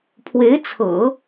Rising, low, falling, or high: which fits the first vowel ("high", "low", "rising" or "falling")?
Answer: rising